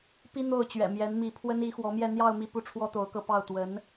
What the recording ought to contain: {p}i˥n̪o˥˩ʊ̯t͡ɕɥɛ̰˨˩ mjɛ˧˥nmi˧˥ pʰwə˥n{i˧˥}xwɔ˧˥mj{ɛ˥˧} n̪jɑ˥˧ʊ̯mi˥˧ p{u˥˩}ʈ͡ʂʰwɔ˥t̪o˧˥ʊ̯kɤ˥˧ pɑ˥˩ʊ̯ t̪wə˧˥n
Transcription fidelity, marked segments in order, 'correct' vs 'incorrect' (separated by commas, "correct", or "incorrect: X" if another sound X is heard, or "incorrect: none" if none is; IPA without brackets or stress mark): correct, correct, correct, correct